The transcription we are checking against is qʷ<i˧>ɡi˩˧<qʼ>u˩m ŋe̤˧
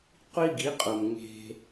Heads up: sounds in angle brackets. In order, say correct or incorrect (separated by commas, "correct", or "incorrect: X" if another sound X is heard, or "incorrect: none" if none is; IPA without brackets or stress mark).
correct, correct